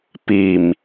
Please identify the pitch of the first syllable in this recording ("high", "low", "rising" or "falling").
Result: low